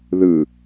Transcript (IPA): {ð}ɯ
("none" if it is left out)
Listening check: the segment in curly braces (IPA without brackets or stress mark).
ð